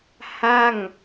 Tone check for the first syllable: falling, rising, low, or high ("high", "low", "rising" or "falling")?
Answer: falling